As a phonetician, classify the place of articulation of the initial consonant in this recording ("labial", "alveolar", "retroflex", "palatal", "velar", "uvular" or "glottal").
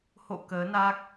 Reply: glottal